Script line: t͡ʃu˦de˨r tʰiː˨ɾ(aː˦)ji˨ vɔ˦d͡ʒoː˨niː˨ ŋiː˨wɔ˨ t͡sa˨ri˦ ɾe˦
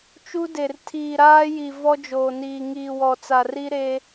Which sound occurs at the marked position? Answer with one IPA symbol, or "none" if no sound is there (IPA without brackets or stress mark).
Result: aː˦